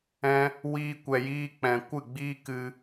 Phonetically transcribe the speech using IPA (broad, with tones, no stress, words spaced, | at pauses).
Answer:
ɛ̃˦ | wiː˦kʷɛ˧jiː˦k͡pɛ̃˧ kʷɨ˦˨ɡ͡biː˦ kɨ˧